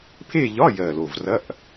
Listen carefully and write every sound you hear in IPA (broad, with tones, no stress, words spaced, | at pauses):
pʰe˥˧ʎɒ˧˥˧ jɜ˨˩lo˨˩vrɐ˧˥˧ʔ